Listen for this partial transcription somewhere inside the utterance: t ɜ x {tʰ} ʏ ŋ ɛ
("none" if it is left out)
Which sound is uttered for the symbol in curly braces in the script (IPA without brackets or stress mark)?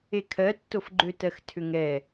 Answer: tʰ